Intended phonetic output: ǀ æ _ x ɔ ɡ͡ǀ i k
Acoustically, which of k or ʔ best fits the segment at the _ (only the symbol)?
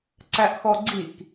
ʔ